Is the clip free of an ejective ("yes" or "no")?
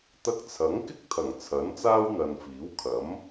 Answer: yes